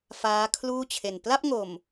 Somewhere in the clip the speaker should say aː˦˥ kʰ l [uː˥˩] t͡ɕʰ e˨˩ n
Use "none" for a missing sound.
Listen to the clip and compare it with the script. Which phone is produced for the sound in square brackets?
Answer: uː˥˩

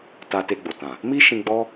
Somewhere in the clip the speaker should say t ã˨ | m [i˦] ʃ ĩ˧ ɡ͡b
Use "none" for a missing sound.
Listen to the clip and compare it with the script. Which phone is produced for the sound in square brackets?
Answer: i˦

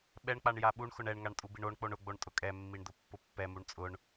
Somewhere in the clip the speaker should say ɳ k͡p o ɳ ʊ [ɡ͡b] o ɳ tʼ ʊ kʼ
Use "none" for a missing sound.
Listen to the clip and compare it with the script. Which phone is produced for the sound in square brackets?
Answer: ɡ͡b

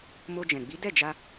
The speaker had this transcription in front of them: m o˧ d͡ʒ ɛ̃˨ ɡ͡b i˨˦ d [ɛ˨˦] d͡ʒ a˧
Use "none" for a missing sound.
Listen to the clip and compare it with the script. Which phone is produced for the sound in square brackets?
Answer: ɛ˦˨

